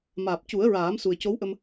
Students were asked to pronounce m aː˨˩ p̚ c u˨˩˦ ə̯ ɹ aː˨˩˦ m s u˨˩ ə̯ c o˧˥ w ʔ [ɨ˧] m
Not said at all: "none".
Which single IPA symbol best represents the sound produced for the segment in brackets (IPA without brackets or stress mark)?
ə˧